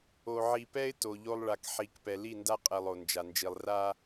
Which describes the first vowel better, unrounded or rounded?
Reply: rounded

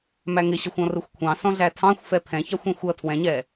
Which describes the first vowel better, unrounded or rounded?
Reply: unrounded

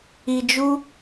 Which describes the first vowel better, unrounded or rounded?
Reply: unrounded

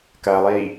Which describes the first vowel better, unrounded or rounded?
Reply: unrounded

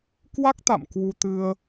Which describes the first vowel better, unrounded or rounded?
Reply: unrounded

